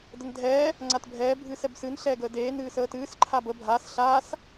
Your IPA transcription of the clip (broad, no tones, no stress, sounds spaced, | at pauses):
d ə n dʱ ɛː | ŋ͡ǀ a t bʱ ɛː bʱ ɨː s ɛ b s ɨ n ɬ ɛː ɡ əː d eː n ɨː s əː t ɨː s ǃʰ a b ə bʱ aː s ɬ aː s